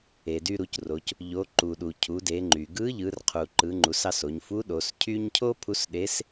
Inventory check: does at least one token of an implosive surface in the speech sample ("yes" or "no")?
yes